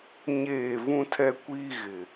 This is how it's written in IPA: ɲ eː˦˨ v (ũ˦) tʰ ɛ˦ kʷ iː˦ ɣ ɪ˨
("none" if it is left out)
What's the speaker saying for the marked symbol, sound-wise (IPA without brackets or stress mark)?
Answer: ũ˦